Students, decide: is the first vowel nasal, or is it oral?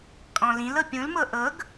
nasal